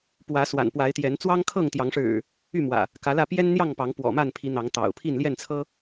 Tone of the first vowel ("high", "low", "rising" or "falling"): rising